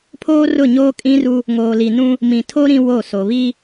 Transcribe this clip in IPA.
pʰ oː˦ r ʊ˦˨ ɲ oː˦ kʼ ĩ˦ r u˦ | ŋ oː˨ l i˨ n ũ˦ | m ĩ˨ tʰ o˦ ɾ ĩ˦ w o˦˨ s o˨ β i˦

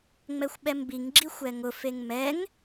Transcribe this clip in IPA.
ŋ͡m ɛ xʷ ɓ ɛ m b i ŋ ɡ͡ǁ i xʷ ɛ ŋ ʊ f e ŋ m ɛ ŋ

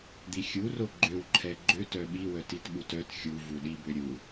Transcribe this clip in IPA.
d̪ i xʲ u r o ɡ͡ǃ ø w ǃʰ ɛ ɡ͡ǃ ø t œ ɓ i w œ t i t ɓ u t œ t xʲ u v u ɗ i b ø ɾʲ u

